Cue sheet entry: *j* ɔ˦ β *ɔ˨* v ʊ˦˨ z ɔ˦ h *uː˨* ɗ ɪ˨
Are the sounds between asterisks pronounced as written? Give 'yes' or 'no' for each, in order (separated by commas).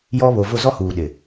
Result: yes, no, yes